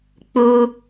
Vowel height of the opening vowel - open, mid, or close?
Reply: close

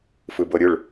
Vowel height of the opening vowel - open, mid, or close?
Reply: close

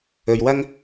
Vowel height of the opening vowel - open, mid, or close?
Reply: mid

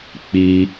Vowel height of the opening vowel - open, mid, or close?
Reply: close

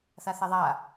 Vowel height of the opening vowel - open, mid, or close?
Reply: open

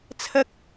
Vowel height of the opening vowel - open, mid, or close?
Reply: open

